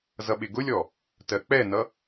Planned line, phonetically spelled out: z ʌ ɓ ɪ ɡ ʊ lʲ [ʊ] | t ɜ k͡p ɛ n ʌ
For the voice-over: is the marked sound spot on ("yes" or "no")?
no